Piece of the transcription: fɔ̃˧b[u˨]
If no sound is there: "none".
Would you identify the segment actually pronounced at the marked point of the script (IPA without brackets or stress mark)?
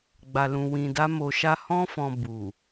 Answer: u˨